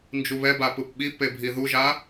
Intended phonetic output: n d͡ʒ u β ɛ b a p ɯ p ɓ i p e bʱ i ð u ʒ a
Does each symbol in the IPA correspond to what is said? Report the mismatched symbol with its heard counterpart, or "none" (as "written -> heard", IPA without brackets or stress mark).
none